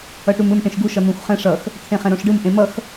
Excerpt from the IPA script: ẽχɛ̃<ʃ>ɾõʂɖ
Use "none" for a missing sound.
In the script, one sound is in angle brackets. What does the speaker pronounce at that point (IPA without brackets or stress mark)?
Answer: none